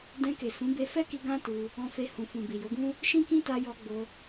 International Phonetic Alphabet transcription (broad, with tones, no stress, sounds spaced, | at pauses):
d ɛ̃˧ k e˨ s ũ˨˦ b e˧ f ɛ˦ k i˧ ɡ ã˦ t u˧ | ɔ̃˧ f e˧ h ũ˨ f ũ˨ b i˨ j o˨˦ ɡ ũ˦ | ʃ ĩ˦ k ĩ˦ t a˧ j ɔ˧ ɡ͡b o˧